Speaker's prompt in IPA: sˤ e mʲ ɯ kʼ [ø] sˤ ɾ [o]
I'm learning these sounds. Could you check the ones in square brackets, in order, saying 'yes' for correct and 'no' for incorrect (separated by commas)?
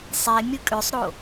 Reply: yes, yes